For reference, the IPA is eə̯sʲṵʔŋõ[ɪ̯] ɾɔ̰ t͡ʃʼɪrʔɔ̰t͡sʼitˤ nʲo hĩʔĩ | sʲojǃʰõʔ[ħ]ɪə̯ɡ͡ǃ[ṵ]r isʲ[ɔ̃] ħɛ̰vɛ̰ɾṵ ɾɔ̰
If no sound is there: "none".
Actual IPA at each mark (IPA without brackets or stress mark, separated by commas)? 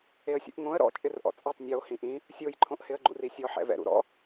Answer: ə̯, h, ṵ, ɔ